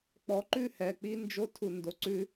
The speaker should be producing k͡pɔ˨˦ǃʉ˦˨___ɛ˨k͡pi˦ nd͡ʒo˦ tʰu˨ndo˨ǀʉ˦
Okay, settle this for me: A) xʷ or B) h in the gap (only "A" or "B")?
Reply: B